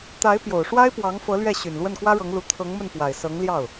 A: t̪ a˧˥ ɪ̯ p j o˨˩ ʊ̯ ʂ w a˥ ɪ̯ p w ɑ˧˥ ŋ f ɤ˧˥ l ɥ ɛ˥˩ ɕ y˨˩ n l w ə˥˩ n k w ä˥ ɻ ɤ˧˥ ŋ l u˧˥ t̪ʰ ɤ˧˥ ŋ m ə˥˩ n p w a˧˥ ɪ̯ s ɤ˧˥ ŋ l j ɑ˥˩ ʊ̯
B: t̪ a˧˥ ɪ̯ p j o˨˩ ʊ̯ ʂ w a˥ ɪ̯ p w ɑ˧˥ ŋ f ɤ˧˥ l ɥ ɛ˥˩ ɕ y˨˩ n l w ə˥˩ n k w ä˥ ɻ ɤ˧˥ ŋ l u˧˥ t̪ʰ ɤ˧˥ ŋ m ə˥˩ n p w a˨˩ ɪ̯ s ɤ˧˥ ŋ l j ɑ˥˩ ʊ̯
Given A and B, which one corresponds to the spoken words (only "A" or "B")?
B